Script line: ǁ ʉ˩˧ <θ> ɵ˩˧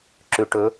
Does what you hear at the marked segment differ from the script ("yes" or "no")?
yes